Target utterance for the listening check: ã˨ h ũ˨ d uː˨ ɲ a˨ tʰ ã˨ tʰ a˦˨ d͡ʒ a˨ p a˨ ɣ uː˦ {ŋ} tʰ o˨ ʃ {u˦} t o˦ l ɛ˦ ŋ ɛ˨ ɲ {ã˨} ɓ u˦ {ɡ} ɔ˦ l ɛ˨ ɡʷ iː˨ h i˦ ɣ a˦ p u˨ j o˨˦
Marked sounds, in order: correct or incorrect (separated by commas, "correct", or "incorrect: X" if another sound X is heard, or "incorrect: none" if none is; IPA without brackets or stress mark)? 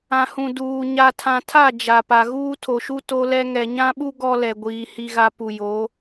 incorrect: none, correct, incorrect: ã˦, correct